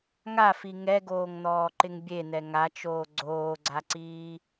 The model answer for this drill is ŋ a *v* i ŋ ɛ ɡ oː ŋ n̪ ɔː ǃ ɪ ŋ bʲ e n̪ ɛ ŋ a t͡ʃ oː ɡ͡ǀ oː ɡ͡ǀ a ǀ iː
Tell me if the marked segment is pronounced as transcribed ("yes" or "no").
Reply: no